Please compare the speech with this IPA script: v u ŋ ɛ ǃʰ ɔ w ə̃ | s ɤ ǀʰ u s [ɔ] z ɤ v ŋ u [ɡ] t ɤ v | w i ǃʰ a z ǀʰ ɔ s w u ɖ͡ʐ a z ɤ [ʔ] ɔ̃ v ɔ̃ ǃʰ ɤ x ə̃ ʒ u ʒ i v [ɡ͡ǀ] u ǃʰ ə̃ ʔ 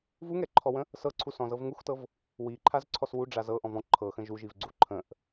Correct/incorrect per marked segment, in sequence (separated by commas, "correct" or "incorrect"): incorrect, incorrect, correct, correct